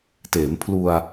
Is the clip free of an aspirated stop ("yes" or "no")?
no